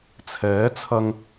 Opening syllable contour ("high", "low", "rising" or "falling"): rising